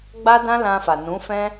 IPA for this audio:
ɡ͡ba˦dã˦lã˧fa˨ nũ˨˦fɛ̃˦

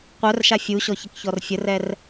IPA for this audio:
qʷœrʃa fʲuɕɔçəkçɔr fʲərɛr

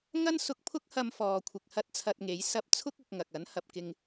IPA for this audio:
ŋɐ˥nsʊ˧k̚pʰʊ˥k̚ hɐ˧mfɔː˨kʷʰɪ˨k̚ hɐ˥t̚t͡sʰɐ˧t̚ŋe˨˥jsɐ˥p̚ t͡sʰʊ˥k̚ʊ˨k̚ ŋɐ˨k̚ɐ˨˥n hɐ˨p̚kɪ˧ŋ

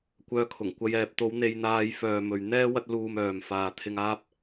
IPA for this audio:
kʷœː˨˧kʰʊ˨˩ŋkʷɐ˨˧j ɛː˨p̚ t̪o˨˧w n̪e˧jn̪aː˧j fœː˨ mɵ˨ɥn̪ɛː˥ wɐ˧t̚luː˨m œː˨mfaː˨ t̪ʰɪ˧ŋ aː˥p̚

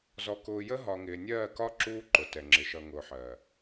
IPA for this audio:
zɔ˨kʊː˨ jə˦ɦɒ˨ŋɪː˨nʲɜː˦˨ kɒ˦ ǁuː˦ǃʊ˨tɛ˨ŋ͡ǁɪ˨˦ ʃʌ˨ŋʊː˨ħɜː˨

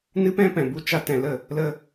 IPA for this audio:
nɨ˦pɛ̃˦pɛ̃˨ bu˧ t͡ʃa˧tɛ̃˨lə˦˨ | lə˧

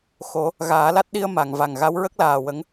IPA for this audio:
xo˨˩˦ | ɣaː˨˩˦la˦˥t̚ɗi˧ə̯ ma˨˩˨ŋva˨˩ŋ ɣa˧˥wɹə˦˥k̚laː˨˩ wə˧˥ŋ

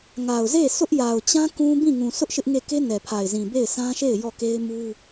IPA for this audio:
ŋa˨ʊ̯ze˦˨sʊ˦ʔ ja˨ʊ̯t͡ɕã˦ kũ˦ bĩ˦˨ŋũ˨ sʊ˦ʔ ʃɪ˦ʔŋe˦˨ ke˦nɛ˨pʰa˨ɪ̯zĩ˨ be˦˨ɪ̯sʰã˦ʃe˦˨ɪ̯ jɔ˦˨ke˦ɪ̯mu˦

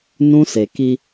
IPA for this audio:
nũ˦se˨ki˦

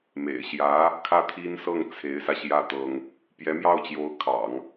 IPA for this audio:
mḛ˨˩ɪ̯ɕjä˧˥ | kʰä˥˩t̪ʰi˥nsɤ˥˩ŋ t͡sʰe˧˥ɪ̯sä˧ɕjä˥˩ t̪ɤ˥ŋ | pjɛ˧˥mjɑ˥˩ʊ̯t͡ɕjo˧˥ʊ̯ kʰɑ̰˨˩˦ŋ

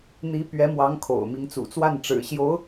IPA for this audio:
n̪i˧˥ pɥɛ˧˥mwɑ˧˥ŋ kʰo̰˨˩ʊ̯mi˧˥ŋt͡sṵ˨˩ t͡swa˥˩n ʈ͡ʂɻ̩˨˩ɕjo˧˥ʊ̯

